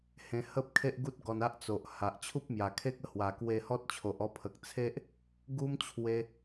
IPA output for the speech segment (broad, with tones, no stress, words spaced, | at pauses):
hẽ˧hə˦p̚kʰe˦ʔɡu˦t̚ ɡɔ˧na˦ʔt͡so˨ʔha˨ʔ t͡ɕʰu˦p̚mja˨˩kʰe˦k̚ə˧ hwa˨˩kwe˧hɔ˦t̚t͡ɕʰo˨ʔ ɔ˧pʰə˨k̚t͡sʰe˦ʔ | ɡu˦mt͡ɕʰwe˧